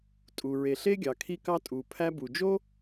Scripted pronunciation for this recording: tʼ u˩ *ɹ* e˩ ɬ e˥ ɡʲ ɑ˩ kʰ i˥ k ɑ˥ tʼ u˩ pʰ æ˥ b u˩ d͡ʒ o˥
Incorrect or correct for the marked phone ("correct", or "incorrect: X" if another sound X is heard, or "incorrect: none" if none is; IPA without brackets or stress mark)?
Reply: correct